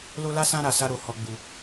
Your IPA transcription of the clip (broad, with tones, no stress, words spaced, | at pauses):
lo˦la˦sã˦ ɾa˧ sa˦ɾo˧ hɔ˧ɡ͡bu˧